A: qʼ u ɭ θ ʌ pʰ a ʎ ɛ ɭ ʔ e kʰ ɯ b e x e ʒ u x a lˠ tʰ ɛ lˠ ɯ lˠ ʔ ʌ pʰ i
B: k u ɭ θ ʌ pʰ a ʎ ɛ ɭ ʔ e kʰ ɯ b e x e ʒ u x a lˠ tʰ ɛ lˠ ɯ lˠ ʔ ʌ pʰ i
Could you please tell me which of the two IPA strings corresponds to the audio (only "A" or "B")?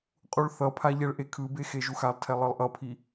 A